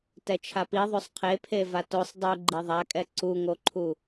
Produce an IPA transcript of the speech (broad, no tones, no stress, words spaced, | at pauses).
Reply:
tɛt͡ʃʰapiðˤosˤ qʰepʰe vatosˤ dˤuɡ͡ǃi ðˤakʼɛ ǀuŋoǃʰu